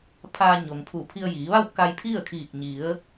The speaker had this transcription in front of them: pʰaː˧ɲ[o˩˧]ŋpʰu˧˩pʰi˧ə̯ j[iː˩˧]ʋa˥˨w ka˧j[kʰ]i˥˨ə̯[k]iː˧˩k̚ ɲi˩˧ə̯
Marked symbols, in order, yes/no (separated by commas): no, yes, no, no